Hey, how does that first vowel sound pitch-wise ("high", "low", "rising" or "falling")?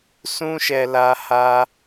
high